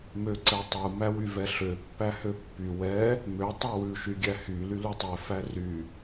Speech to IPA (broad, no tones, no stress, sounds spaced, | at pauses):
m ø ǀ ɛ tˤ u m æ w y v ɛ ɬ ø pː æ h ø pː y w ɛ | m ø tˤ u w ʉ ʃ y ɡʲ æ h y l y l u tˤ ɛ f æ r y